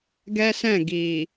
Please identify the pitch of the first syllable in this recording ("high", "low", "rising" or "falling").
high